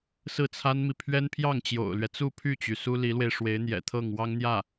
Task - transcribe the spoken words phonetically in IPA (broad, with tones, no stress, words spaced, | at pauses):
sɹ̩˥˩t͡sʰa˥nmi˨ pʰɥɛ˥npʰjɑ˥˩ŋ t͡ɕjo̰˨˩ʊ̯lɥɛ˦ t͡su˥˧pʰy˥˩t͡ɕy˩ su˥li˧˥lwe˧ɪ̯ ʂwe˧˥ɪ̯n̪jɛ̰˨˩ t̪ʰɤ˥˩ŋwɑ˥ŋn̪jä˥˩